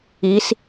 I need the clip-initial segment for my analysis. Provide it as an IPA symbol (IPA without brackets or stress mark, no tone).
i